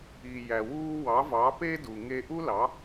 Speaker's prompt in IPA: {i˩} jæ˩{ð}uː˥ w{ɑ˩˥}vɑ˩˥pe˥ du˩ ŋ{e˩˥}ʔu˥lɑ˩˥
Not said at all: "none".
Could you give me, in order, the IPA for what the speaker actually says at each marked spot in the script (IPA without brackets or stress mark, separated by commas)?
i˩, w, ɑ˩˥, e˧